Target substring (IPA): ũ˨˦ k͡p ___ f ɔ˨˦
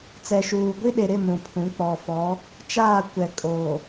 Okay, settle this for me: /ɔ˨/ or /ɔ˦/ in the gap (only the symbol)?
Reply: ɔ˨